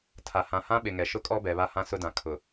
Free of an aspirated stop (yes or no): no